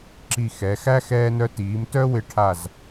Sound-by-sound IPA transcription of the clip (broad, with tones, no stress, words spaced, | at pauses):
ǁi˧˩ xɛ˩˧xæ˥ xɛː˧nœ˧tiː˩˧m tœ˥wɪ˧ʈʰa˧˩z